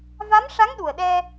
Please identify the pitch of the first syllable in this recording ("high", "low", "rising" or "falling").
rising